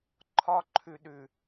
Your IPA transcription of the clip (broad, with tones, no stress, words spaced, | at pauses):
ǃʰɒ˧ǃʰʉ˨ɗʉ˨